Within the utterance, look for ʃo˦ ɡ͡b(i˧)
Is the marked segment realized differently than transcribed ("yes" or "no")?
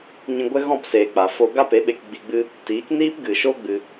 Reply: yes